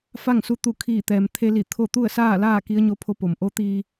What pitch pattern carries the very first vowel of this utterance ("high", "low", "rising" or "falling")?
falling